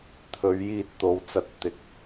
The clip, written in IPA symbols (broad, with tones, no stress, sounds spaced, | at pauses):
t̪ʰ ɵ˨˥ ɥ j iː˧ t̚ t̪ o˨˧ w t͡s ɐ˧ t̚ t̪ ɪ˧ k̚